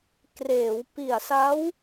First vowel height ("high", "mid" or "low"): mid